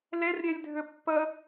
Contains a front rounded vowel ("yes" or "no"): yes